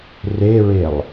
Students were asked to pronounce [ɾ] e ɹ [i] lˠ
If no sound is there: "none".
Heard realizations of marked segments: r, e

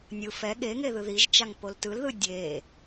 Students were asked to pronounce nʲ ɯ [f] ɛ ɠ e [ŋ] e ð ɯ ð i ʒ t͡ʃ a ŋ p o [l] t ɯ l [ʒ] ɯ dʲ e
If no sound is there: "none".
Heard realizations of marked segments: f, ŋ, l, ð

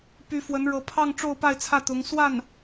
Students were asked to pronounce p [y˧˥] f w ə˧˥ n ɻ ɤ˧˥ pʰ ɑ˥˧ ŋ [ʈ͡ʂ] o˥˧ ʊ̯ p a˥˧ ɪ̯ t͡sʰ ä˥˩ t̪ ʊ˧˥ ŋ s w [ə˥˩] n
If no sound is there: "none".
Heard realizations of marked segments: y˧˥, ʈ͡ʂ, a˥˩

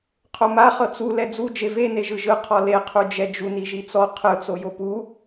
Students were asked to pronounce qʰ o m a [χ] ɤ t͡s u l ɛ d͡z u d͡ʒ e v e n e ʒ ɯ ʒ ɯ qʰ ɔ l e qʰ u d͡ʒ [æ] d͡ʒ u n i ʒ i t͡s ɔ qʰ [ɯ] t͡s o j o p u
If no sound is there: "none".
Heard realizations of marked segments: χ, ɛ, ɯ

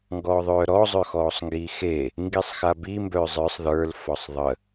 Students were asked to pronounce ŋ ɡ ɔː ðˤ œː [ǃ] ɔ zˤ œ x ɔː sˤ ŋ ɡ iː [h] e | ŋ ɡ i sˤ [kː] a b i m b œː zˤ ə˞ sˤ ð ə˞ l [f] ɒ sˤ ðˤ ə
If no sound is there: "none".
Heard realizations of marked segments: ɾ, x, x, f

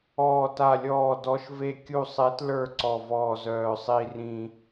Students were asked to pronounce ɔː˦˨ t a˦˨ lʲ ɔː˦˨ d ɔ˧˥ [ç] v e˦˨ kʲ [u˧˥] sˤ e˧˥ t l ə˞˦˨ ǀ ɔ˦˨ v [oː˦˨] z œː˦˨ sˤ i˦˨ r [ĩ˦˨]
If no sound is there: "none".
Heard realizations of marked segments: ʃ, u˦˨, ɔː˦˨, ĩ˦˨

